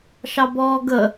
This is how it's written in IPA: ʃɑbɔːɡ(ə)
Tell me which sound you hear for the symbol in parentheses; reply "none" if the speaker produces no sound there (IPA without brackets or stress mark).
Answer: ə